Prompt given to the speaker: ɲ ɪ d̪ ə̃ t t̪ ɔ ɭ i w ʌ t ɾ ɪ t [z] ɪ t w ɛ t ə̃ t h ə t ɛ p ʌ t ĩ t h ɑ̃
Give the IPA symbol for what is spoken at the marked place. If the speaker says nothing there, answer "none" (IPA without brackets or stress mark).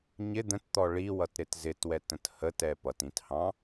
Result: z